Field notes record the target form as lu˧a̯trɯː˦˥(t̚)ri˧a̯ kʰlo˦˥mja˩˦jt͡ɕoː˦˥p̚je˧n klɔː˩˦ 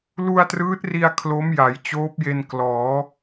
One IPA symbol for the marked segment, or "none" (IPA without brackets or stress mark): t̚